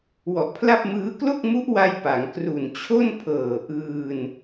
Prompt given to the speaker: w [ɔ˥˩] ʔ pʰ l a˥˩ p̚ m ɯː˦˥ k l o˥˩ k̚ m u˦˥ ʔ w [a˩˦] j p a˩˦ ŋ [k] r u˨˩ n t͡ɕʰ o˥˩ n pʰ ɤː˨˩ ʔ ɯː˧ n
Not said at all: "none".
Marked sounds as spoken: ɔ˨˩, a˧, k

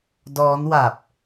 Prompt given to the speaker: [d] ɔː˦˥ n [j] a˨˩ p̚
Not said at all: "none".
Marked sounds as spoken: d, w

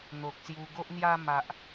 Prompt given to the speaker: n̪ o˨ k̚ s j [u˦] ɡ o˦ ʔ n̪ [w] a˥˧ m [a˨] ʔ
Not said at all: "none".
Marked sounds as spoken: u˧, j, a˨

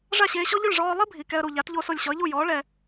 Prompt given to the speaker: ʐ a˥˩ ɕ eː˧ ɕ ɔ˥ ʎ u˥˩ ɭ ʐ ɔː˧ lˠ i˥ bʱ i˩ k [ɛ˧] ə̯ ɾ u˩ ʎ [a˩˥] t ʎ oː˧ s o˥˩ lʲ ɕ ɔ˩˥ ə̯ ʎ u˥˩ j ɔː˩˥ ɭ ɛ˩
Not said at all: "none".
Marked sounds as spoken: ɛ˧, a˩˥

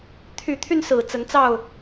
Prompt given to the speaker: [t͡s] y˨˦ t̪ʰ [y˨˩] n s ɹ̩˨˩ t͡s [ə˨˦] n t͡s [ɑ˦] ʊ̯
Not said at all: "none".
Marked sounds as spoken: t̪ʰ, y˧, ə˨˦, ɑ˥˨

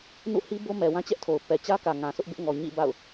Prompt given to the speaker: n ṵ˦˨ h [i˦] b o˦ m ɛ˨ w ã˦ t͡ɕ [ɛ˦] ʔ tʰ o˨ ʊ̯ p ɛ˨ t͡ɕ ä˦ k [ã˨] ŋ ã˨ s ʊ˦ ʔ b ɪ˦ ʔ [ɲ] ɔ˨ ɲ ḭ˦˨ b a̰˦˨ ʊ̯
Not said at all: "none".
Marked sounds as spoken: i˦, ɛ˦, ä˨, ŋ

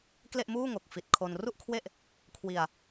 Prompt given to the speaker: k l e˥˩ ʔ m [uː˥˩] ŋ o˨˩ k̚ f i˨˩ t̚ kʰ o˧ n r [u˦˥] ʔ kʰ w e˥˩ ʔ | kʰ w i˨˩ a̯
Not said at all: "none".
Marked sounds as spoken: uː˥˩, u˥˩

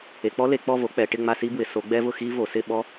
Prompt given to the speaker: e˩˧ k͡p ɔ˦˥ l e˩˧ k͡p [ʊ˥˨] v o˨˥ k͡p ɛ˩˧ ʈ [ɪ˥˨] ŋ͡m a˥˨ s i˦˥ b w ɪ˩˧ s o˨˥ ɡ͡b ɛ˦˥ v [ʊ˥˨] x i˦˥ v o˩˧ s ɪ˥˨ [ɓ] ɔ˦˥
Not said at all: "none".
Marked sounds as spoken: ɔ˥˨, ɪ˥˨, ʊ˥˨, ɓ

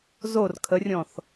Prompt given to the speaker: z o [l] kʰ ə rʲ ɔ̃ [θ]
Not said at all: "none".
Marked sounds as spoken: r, θ

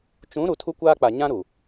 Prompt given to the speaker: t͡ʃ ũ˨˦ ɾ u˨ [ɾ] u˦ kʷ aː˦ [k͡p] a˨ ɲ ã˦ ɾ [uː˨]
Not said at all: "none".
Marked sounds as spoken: tʰ, k͡p, u˨

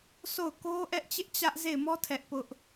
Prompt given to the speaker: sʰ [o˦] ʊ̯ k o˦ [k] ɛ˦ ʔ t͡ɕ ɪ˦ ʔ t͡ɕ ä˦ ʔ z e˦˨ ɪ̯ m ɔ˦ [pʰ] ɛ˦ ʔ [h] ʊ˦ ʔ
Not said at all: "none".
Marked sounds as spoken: o˦˨, ʔ, tʰ, p

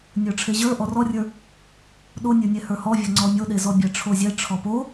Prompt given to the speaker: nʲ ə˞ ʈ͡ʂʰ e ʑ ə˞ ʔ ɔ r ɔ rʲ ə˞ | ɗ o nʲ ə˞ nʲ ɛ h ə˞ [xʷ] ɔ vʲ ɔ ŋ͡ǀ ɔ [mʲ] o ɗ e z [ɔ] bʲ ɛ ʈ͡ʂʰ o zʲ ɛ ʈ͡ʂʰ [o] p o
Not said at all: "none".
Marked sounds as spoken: h, mʲ, ɔ, ɔ

